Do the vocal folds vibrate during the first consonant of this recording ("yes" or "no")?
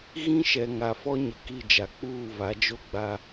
yes